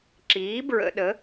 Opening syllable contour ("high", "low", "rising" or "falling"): rising